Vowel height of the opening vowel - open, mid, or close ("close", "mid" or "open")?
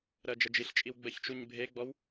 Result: mid